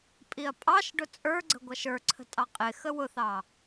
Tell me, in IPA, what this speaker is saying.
pʼ i ɐ̯ pʼ ɑ ʃ ɖ ʊ t͡sʼ ə˞ ɡ͡ǀ ə̤ ɡʷ ʌ ʃ ə˞ ǀʰ ə̤ tʼ ɑ qʼ ɪ x ə w ʊ θ ɑ

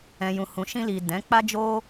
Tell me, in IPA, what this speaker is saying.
ɛ̃˨ j ũ˨ h ũ˨ ʃ ĩ˧ l i˨ d ɛ̃˨˦ k͡p a˦ d͡ʒ o˦

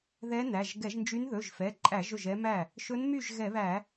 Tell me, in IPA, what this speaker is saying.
ð ɛ˧˥ n æ˩˧˩ ʒ ɡ ɛ˧˩˧ ʒ n d͡ʒ y˧˥ n ð ɵ˩˧˩ ʒ f ɛ˩˧˩ ǃʼ æ˧˩˧ ʒ ɵ˥˩ ʒ ɛ˧˥ m æ˥˩ | ʃ ɵ˧˥ n m y˥˩ ʒ ɣ ɛ˧˩˧ β æ˧˩˧

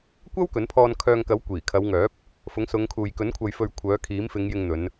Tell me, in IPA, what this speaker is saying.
kʷ ɐ˥ w k ɵ˨˥ n pʰ ɔː˧ n kʰ œː˧ ŋ k ɐ˨˥ w kʷ iː˨˩ kʰ ɐ˨˧ w ŋ œː˨˥ p̚ | f ʊ˨˥ ŋ s ʊ˨˧ ŋ kʰ uː˨ j k ɵ˨˥ n kʷʰ ɐ˨ j f ɵ˨ ɥ kʷʰ œː˨˥ kʰ iː˨˥ m f ɪ˨˧ ŋ j ɪ˧ ŋ n̪ ɵ˨˧ n

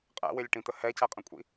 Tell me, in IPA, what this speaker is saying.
qʼ æ̰ w ɪ lʲ ʈ ĩ t̪ ə h ɛ c æ qʼ ə̃ kʷʼ ḭ

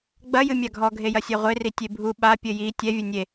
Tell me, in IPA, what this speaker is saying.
ɡ͡b ɐ j ɨ mʲ a ɡʱ ɔ ɡʱ e j ɐ sʲ ɛ ʁʷ e r i tʲ e bʱ u ɓ a pʲ ɘ j i tʲ ɛ vʲ ɘ nʲ e

